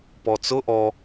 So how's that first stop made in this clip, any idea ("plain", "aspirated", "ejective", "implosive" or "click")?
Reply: plain